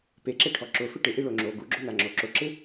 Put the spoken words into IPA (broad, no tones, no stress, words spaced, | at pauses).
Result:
peǁeʈʰɔ ǁʊfɪ ʈɪʔiɭo ŋ͡ǁo ɡuɡ͡ǁonaŋ͡ǁo ǁʊǁɪ